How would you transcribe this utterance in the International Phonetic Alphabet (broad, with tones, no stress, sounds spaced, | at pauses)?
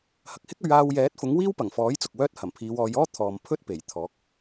h ɐ˨ k̚ h ɪ˥ k̚ ɵ˨˧ ɥ aː˧ w j ɛː˨˥ t̚ f ʊ˨˥ ŋ w iː˥ w p ɐ˨˩ ŋ f ɔː˨˥ j t͡s ʊ˨ k̚ w œː˥ t̚ h ɐ˨˩ m pʰ iː˨˧ w ɔː˨˧ j ɔː˥ t̪ʰ ɔː˨ m pʰ ɵ˥ t̚ p e˨˩ j t̪ʰ ɔː˨˥ k̚